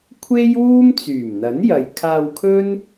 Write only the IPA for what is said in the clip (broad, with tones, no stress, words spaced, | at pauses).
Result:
kʷʰe˥jwuː˥m t͡syː˨˩mn̪ɐ˨˥njɐ˨j kʰaː˧wkʰɵ˥n